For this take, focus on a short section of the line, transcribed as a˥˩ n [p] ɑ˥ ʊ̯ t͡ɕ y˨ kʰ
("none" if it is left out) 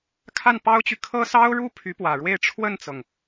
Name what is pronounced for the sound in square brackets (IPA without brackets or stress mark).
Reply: p